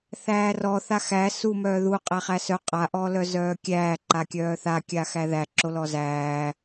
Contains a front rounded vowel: yes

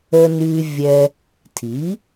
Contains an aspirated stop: yes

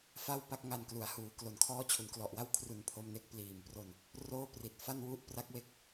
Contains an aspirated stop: yes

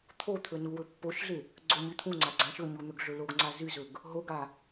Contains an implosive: no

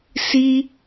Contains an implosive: no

